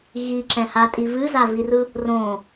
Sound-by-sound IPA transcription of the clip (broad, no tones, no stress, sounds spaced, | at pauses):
ɣ i ǁ ɛ̃ h a tʼ i v ɨ z a v i r ɯ | r õ